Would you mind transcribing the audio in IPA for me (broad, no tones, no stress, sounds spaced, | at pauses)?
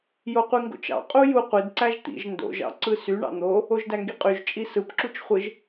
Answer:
j o qʷ i ŋ ɡ o̰ t͡ʃ ɑ̰ qʼ u j u qʷ i d ǀ æ ʒ t̪ ḭ ʒ n d o̰ ʒ ɑ̰ ǀ ɯ s y ɳ ɑ̰ n̪ o | o ʒ d æ ŋ ɡ i qʼ y ʒ t͡ʃʼ i s ɯ p ǁ u t͡ʃ χʷ ɯ ʒ